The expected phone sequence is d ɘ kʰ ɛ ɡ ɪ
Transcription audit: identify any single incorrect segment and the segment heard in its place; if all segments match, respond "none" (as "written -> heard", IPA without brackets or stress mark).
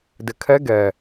ɪ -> ɛ